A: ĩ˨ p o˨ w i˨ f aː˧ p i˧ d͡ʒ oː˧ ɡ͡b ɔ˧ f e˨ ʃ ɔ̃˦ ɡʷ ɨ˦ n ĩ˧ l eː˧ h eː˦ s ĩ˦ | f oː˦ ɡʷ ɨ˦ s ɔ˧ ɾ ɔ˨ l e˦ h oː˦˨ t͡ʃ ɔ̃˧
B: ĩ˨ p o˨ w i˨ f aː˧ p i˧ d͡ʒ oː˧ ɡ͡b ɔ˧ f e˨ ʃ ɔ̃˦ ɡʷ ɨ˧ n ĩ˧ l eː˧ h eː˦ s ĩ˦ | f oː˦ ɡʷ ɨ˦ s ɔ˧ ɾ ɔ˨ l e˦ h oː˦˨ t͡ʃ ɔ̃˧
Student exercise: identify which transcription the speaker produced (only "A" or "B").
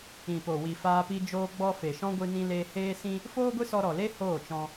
B